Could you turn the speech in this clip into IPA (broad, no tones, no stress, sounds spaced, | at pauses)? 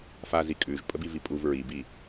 f a z i kʼ ʉ ʒ pʼ ə b i v i pʼ u v ɹ i b i